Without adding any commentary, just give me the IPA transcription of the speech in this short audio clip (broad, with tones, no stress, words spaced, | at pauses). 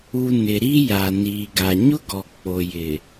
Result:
u˨ nɪ˨ɾi˦ja˨ niː˨ɡa˨ ɲʊ˦ɡɔ˨ k͡po˨jɪ˨